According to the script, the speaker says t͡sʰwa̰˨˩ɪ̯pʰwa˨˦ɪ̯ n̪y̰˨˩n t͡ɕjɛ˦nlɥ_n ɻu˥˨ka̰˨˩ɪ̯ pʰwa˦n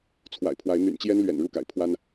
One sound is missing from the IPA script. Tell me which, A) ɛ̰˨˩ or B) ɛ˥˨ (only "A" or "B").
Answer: A